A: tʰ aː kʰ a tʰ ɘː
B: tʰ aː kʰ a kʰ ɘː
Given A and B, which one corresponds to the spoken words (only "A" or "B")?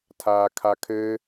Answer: B